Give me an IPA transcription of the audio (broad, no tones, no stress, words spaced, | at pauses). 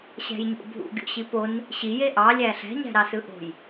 ɕæ̤jɲo̰bʱṵ ɡʲo̰ɕipon | ɕi jeʔɑlʲæ ɬæ̤ɲæ̤ɾɑsɯ ʔo̤j